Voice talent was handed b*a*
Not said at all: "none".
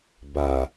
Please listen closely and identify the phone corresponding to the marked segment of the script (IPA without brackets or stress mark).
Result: a